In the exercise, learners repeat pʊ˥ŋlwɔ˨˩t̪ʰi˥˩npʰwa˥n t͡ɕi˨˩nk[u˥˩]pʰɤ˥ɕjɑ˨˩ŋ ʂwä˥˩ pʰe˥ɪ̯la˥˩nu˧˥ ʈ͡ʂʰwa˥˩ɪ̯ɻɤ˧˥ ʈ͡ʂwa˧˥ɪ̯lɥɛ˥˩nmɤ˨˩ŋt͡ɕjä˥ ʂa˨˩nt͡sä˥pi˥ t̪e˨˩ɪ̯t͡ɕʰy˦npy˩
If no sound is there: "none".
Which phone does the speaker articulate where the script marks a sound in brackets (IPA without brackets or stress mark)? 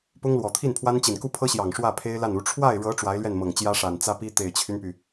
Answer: u˥˩